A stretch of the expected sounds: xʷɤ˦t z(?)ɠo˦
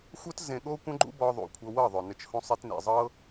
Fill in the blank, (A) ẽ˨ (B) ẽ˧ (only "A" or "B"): B